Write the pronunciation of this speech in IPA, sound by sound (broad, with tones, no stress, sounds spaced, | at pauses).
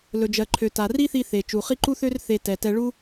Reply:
l ɵ˩ d͡ʒ ɜ˩ ǃʰ ø˩ t a˩ r i˥ θ i˧ θ e˩ t͡ʃ u˩ χ i˥ ǃ u˥ θ ø˥ r θ e˧ t ɛ˩ t ɛ˧ ɭ u˥